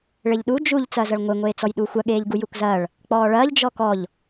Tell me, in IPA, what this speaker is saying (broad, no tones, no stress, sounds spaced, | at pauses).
ɭ e ʎ ɗ u d͡ʒ u ʎ t͡s ɐː z ɐ ɭ ŋʷ e ŋʷ eː t͡s ɔ j ɗ u xʷ ɐ ɠ eː ʎ ɡ u j u k z ɐː ɭ | k͡p ɔː ɭ ɐː ʎ d͡ʒ ɔ k ɔ ʎ